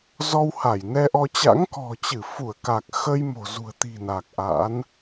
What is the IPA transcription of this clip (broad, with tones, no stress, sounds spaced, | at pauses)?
z ɔ˧ w h a˧˩ j n ɛ˧ ʔ ɔ˧ t͡ɕ a̰˧˥ ŋ k ɔ̤˨˩ t͡ɕ ɨ˧˩ f u˧˩ ə̯ k a˨˩ k̚ x ə˧ j m o̤˨˩ z ṳ˨˩ ə̯ t̪ i̤˨˩ n a˨˩ k̚ ʔ a̰˧˥ n